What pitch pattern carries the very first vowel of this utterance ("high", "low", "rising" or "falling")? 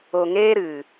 low